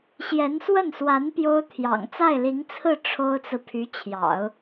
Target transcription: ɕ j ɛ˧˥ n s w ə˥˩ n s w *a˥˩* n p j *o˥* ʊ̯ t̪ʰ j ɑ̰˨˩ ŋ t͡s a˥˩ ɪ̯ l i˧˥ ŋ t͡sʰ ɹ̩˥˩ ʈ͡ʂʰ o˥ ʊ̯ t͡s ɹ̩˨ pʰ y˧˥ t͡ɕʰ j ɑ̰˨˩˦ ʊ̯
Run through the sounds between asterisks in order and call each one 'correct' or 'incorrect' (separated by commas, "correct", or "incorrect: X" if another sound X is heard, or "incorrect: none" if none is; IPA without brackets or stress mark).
incorrect: a˧˥, correct